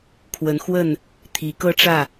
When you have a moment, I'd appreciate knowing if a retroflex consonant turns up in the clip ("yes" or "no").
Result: yes